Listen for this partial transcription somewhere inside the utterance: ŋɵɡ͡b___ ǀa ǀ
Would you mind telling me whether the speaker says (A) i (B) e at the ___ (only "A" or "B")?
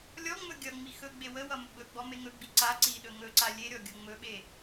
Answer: A